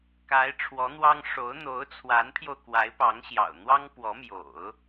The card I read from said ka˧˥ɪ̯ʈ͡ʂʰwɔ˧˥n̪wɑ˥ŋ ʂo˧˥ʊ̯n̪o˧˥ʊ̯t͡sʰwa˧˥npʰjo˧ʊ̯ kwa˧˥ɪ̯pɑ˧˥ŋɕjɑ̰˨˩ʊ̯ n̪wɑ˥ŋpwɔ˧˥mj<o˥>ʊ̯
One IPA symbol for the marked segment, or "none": o̰˨˩˦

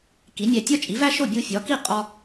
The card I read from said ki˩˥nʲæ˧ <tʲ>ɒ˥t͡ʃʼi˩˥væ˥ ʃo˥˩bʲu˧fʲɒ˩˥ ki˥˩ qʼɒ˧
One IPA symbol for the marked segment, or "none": tʲ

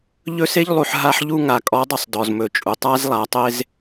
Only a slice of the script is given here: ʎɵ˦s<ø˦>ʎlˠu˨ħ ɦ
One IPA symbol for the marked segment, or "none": e˦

